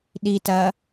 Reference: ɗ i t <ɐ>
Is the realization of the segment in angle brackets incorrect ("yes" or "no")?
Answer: no